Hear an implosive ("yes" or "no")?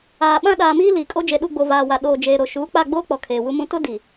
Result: yes